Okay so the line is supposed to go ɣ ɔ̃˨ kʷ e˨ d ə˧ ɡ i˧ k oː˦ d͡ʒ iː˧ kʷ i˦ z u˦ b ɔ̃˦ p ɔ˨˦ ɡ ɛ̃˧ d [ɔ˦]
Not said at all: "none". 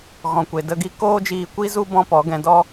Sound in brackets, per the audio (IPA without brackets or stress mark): ɔ˦